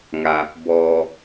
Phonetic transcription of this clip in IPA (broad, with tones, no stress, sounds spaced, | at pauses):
ŋ a˩ | b ɔː˩